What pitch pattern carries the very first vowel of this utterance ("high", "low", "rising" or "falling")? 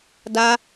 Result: high